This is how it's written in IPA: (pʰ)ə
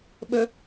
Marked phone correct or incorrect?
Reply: incorrect